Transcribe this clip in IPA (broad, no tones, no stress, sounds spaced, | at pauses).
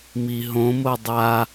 m i ɦ õ m o dˤ a